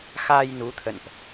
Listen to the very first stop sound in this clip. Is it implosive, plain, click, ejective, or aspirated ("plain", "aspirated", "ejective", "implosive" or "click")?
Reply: aspirated